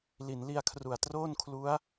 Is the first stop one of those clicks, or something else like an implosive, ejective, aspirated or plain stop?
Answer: aspirated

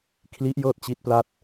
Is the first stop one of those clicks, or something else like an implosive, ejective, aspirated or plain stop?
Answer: aspirated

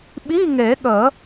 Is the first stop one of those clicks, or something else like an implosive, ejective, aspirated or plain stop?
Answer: implosive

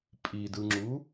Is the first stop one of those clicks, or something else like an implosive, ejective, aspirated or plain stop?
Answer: ejective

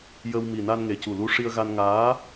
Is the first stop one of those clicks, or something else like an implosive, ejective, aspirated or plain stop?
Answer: plain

